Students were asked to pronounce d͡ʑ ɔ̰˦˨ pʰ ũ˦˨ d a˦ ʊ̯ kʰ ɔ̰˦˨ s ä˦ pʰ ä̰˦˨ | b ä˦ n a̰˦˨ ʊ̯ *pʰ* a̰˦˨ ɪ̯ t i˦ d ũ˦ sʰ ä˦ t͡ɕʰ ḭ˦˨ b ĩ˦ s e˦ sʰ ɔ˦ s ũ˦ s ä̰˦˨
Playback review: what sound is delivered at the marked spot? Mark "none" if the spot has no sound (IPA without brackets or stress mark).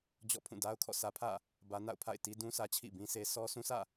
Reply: pʰ